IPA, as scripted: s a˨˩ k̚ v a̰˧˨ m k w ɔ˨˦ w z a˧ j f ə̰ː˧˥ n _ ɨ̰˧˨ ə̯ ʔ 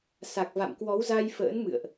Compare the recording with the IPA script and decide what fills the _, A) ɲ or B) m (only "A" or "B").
B